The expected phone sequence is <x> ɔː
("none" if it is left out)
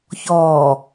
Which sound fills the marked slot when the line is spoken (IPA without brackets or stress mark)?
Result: ç